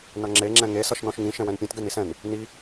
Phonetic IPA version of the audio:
n ʌ ŋ͡ǁ e ŋ͡ǁ ɛ̃ ŋ e s ʌ ʃ n ɔ̃ ʃ ŋ ĩ ʃ ɛ̃ w ɛ̃ n pʲ ɛ̃ t ɡ ɛ n i s ɛ̃ n | n i

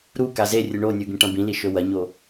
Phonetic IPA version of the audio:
ɾ u k a z e rʲ ɨ ɳ o nʲ u ɡ ĩ ʈ ɐ̃ b ĩ l i ʃ ɵ w ɐ ɲ o

